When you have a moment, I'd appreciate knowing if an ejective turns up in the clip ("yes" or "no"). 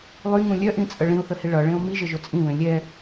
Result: yes